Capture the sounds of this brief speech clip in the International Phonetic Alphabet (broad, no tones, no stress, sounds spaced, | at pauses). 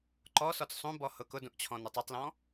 ǃ ɔ s ɔ t͡s sˤ ũ b ɔ h ʊ k ʊ d ũ ʔ t͡ɕʰ ɔ̃ n ʊ tˤ u tˤ l ɔ̃